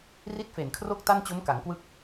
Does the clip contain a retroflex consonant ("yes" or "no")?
no